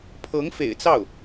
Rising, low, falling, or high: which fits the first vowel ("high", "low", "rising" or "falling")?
rising